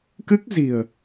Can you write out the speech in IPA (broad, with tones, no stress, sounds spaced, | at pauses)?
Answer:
k ɨ˦˥ k̚ z i̤˨˩ ə̯